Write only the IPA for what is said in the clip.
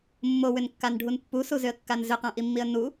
mːowʏnkːanɖʱun pːusuzʏə̯kːan zʏqãʔimːiə̯ nu

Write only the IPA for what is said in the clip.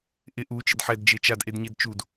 ʔɪ ʔu t͡ʃɪdħɛd d͡ʒet͡ʃadʔedɲed t͡ʃud

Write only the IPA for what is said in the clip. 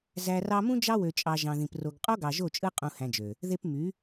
zæ˨rɑ˧mũ˦ d͡ʒɑ˦wø˨t͡ʃʼɑ˨ ʒɑ̃˨ðĩ˨p ro˨ɡ qʼo˦ɡɑ˨ ʒo˦˨t͡ʃʼɯ˦ qʼũ˧hæ̃˧d͡ʒø˨ | ðe˧p my˨˦

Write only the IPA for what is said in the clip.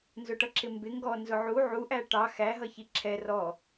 nzʊʈʌǁɪmbɪ ŋɡɔ nzʊʕu ʕuʔæ ʈɑ xæɦʌ çiǁʰɛ rɔ

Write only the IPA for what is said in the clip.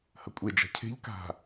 hɐkʷʼe d͡ʒa̤cʰe̤ʎ ka̤

